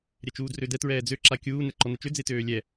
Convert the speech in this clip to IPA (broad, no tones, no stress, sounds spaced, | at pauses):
ɾʲ ɛ t͡ʃ uː d r ø d ɛ t ɹ ɛː d͡z ø ǁ a kʲ uː n ɛ ǃ ɔ n ɛ t͡ʃ ø d͡z e t øː lʲ ɛ